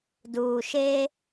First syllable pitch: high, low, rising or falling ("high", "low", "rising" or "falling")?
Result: low